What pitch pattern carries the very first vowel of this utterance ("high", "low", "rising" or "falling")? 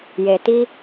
low